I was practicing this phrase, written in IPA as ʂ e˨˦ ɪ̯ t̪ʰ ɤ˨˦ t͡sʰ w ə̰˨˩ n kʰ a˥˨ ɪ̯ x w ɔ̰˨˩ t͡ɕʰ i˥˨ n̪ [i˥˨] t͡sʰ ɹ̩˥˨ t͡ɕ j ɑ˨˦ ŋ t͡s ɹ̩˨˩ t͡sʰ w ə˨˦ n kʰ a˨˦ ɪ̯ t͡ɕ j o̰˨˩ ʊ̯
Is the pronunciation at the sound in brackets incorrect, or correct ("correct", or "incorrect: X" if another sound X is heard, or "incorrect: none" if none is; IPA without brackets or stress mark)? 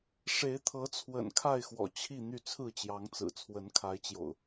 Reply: incorrect: y˥˨